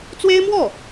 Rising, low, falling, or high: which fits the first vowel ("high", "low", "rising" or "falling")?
high